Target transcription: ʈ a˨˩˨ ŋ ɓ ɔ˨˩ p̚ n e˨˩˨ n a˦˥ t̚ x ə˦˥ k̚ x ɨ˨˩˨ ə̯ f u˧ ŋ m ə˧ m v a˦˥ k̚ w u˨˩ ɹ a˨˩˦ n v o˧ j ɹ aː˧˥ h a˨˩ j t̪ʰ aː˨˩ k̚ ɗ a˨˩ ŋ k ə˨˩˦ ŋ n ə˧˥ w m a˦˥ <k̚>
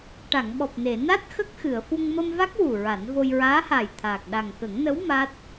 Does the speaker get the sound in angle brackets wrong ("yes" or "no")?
yes